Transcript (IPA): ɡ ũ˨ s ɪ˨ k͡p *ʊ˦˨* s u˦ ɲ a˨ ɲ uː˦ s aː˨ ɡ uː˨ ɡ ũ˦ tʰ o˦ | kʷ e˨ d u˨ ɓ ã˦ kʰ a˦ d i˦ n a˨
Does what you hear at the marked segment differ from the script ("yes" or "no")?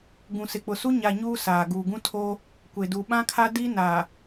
yes